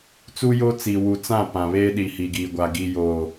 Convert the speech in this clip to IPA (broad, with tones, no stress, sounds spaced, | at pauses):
t͡s u˦ j o˦ t͡s iː˨ w u˨ t͡s ã˦˨ p ã˨ β eː˦ ɗ i˨ h i˨ ɡ iː˨ ɡʷ a˨ ɡ i˨ j oː˨